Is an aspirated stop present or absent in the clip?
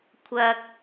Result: present